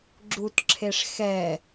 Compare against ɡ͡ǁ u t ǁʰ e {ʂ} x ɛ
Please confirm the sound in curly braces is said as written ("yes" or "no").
yes